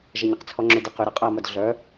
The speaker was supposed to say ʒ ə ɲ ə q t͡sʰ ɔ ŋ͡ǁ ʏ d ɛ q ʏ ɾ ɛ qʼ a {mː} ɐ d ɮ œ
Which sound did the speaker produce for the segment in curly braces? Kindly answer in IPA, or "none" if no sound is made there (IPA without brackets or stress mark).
m